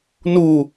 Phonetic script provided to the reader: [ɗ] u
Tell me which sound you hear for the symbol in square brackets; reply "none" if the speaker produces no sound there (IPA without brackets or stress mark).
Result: n